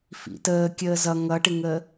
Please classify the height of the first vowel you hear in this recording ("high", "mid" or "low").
high